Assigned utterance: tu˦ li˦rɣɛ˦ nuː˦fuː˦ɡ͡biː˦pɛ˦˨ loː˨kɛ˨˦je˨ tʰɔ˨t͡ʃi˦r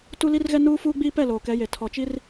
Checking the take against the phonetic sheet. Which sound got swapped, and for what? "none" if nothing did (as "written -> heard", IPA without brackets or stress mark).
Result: none